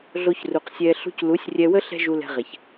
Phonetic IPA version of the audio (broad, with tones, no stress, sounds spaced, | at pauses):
ɮ o˧ ç r u˨ q sʲ ɛː˧ ɬ ṳ˧ c l u˨˦ sʲ rʲ ɛ˧ w ə˦ ɬ ɛ̤˦ ʒ u˧ l ɛ̤˧ ʁ ɛ˨ ç